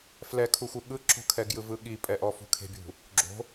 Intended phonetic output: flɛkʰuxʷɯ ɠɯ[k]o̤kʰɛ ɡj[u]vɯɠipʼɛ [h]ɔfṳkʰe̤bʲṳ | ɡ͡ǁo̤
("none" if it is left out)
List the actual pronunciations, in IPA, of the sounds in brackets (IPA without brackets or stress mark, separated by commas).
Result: ǁ, ɯ, ʔ